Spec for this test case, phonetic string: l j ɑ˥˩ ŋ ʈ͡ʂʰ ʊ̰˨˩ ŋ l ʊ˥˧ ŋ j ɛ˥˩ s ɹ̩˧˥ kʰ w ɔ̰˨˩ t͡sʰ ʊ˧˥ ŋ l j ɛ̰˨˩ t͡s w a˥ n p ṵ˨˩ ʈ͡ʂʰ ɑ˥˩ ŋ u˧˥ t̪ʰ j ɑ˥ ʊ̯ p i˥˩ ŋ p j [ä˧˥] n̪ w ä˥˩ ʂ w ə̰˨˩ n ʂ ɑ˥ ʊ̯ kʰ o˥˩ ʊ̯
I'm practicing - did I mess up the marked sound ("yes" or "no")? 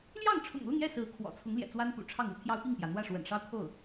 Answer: yes